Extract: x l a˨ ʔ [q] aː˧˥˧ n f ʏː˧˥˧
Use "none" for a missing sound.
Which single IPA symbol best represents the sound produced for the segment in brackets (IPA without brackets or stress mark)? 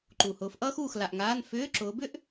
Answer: ŋ